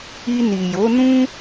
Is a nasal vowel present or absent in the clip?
present